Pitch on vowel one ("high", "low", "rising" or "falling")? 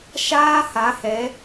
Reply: high